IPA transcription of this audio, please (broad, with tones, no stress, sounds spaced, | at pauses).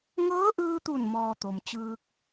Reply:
ŋ ɤː˧˥ ʔ ɯː˧ t̪ u˧˩ n m ɔː˧ t̪ o˩ m t͡ɕ ɯː˧ k̚